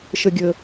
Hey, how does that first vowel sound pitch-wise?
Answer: low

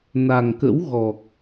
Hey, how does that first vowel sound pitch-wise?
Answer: low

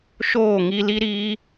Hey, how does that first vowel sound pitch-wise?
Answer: falling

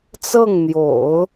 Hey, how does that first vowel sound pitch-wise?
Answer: falling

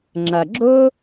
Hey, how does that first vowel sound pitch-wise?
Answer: low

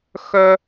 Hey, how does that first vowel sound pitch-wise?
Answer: high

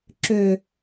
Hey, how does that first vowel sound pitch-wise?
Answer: low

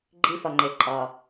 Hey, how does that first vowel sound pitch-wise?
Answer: high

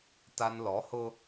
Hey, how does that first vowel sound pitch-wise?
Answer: high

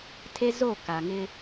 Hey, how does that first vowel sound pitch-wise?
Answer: high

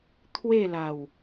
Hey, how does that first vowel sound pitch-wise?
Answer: falling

